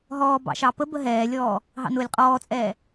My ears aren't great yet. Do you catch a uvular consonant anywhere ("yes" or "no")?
yes